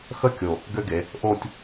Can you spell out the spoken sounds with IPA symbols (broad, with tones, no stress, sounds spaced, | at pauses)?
x ə˥˧ kʲ o˧˩ | ɡ ø˥ ɡ e˩˧ | ʔ o˥˧ tʲ